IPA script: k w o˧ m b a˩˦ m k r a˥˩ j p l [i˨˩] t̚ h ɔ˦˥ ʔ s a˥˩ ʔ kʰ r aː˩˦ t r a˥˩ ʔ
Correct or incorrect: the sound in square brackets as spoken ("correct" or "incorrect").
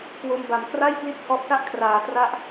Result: incorrect